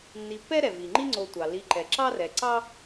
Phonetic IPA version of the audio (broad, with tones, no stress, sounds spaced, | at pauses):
nː i˨ pː ɛ˥ ɾ ɛ˩ v i˩ ŋ͡ǃ i˦ ŋ͡ǀ o˨ tʷ ɑ˩ l i˨ ǃ ɛ˩ ǁ ɑ˥ r ɛ˨ ǀ ɑ˥